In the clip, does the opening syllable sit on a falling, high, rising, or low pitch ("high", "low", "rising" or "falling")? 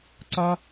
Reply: high